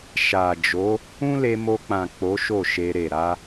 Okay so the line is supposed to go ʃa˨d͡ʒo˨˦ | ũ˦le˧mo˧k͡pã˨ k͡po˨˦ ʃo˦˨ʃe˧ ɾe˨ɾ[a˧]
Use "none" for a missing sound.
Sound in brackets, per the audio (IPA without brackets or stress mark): a˧